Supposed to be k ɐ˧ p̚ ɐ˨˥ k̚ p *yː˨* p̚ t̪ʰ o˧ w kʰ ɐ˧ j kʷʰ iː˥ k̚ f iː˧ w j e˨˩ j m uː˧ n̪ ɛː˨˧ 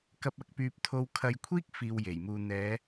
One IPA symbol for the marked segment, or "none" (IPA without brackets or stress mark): yː˨